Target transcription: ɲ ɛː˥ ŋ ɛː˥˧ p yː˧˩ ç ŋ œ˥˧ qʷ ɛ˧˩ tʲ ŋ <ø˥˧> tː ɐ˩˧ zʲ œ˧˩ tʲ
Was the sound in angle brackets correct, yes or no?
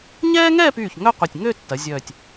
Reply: yes